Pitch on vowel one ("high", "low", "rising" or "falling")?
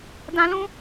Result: low